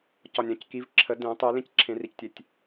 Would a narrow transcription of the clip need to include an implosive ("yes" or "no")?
no